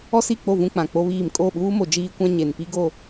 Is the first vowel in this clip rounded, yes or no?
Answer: yes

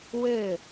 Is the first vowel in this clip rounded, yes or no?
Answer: no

